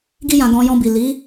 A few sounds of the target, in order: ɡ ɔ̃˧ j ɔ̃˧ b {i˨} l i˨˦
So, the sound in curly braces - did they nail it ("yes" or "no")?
yes